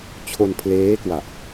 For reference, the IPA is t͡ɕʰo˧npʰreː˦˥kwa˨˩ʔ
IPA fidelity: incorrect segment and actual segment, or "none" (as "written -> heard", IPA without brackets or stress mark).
r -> l